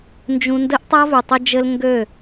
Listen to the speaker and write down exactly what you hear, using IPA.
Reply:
n d͡ʒ ũ˦ n d ɘ˦ ʔ tˤ a˦ v ʉ˨ tˤ ɘ˦ d͡ʒ ɘ˦ l ŋ ɡ ø˦˨

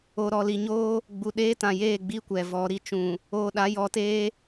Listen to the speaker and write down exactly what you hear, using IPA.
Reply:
o˨ ɾ ɔ˨ l i˨ ɲ oː˦ | ɡ͡b u˨ ɗ eː˦ t ã˨ j eː˦˨ ɡ͡b i˦ kʷ ɛ˨ v ɔ˨˦ ɾ i˨ t͡ʃ ũ˨ | oː˨ ɗ a˨˦ j ɔ˨˦ t eː˦

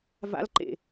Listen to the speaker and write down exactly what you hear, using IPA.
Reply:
v a̰ l ǃ ḛ

